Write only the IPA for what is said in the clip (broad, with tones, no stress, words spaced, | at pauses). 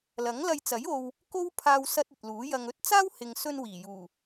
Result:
lɐ˨˥ŋlɐ˧jt͡sɐ˨˥j o˧w | ko˥wpʰaː˧w sɐ˧t̚ ɵ˨t̚luː˨˥jɐ˧ŋ ɵ˥t̚ t͡saː˥whɪ˨ŋsɵ˧n wiː˨˩juː˨˩